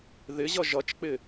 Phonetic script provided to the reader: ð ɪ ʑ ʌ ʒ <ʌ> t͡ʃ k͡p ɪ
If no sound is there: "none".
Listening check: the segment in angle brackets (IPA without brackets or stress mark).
ʌ